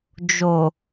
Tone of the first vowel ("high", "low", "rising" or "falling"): low